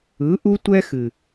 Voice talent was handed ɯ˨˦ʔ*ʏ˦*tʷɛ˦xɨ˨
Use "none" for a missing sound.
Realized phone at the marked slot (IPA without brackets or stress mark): u˦